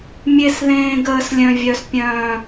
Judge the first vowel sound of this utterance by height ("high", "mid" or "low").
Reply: mid